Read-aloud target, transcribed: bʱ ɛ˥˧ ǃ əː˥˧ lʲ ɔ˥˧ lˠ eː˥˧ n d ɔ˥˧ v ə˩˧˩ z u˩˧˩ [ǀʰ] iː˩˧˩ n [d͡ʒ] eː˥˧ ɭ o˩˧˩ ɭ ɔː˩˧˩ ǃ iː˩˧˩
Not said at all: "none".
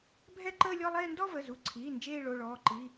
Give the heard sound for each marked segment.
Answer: ǀʰ, d͡ʒ

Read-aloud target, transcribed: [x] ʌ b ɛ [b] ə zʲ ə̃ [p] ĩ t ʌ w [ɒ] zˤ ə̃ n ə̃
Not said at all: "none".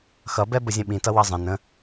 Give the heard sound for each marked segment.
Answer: x, b, ɓ, ʌ

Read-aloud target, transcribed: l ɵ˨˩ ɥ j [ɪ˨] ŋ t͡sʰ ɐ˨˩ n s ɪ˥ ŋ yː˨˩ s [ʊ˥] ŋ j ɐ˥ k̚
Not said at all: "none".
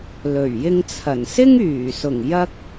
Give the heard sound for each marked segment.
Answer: ɪ˧, ʊ˨˩

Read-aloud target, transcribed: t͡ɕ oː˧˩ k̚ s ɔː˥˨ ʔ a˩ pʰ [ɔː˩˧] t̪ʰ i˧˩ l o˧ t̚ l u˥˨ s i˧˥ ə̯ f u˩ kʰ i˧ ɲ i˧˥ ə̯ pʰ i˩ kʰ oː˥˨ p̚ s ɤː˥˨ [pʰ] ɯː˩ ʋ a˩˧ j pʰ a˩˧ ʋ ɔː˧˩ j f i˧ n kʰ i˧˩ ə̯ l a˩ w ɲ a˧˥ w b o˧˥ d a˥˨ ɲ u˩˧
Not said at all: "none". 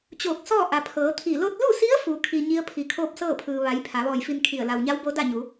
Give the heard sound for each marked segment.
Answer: ɤː˩˧, pʰ

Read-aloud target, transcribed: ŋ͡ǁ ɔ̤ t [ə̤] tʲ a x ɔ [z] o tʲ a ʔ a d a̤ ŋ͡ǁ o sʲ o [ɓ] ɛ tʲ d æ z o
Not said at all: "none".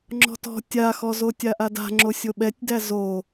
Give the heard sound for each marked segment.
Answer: ɔ̤, z, ɓ

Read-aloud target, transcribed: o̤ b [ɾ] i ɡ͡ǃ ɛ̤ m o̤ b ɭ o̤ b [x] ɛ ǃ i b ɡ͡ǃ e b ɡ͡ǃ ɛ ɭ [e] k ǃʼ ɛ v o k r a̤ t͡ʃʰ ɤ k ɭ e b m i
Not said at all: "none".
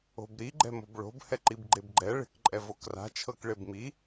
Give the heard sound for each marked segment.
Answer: ɾ, h, e̤

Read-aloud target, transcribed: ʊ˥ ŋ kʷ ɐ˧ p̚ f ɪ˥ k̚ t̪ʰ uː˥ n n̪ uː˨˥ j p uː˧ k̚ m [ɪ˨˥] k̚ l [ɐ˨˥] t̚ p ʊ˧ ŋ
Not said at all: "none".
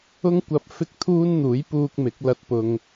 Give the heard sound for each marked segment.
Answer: ɪ˨˥, ɐ˧

